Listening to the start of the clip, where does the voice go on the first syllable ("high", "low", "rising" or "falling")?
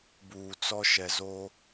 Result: low